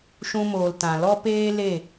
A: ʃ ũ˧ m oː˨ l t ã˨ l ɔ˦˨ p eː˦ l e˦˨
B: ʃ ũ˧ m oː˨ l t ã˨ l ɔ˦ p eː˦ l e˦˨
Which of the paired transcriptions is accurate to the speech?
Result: B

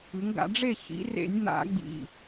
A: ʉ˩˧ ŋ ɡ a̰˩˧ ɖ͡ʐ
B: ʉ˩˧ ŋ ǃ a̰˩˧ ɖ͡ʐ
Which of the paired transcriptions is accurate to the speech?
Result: A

